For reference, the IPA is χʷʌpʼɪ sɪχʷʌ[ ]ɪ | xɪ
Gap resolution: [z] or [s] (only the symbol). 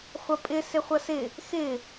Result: s